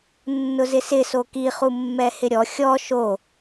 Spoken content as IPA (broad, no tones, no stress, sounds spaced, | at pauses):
nː ʊ z ɪ s ɪ s o k i χ u mː ɛ h ɪ ɾʲ ɔ xʲ ɔ ʃ o